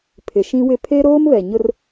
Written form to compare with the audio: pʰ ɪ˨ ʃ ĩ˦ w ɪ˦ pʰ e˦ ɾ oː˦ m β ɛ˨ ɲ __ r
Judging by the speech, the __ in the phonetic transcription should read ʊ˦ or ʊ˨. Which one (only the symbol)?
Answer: ʊ˦